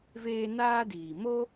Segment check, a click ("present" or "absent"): absent